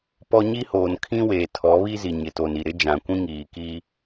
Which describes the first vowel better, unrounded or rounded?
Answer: rounded